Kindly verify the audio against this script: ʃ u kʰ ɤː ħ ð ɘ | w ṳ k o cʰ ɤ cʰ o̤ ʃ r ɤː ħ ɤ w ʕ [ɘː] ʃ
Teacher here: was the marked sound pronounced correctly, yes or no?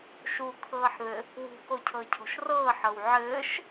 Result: yes